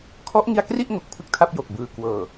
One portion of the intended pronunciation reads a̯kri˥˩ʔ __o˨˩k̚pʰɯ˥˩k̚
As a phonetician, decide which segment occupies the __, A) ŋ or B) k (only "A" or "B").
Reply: A